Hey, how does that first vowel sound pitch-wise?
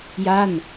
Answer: falling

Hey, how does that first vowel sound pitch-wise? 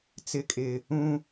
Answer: low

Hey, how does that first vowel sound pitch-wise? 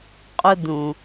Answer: high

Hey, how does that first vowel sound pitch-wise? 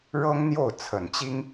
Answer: high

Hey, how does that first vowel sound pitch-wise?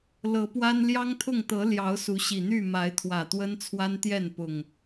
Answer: rising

